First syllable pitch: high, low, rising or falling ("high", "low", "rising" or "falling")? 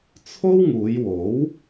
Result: high